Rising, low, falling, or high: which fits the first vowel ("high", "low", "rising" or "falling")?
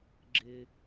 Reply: high